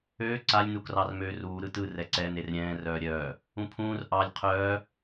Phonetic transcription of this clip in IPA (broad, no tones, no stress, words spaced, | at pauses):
øː ǀalʲ nukrɑrmøːruː ɾɯtɯ rɛǀɛ nerɾʲɛ̃ː rœːɾʲœː | ũpʰũːr ʔɑlʲ qʰœː